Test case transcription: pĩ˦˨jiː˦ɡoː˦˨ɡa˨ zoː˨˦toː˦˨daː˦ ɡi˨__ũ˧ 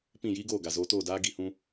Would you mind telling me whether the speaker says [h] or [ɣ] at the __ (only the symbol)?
h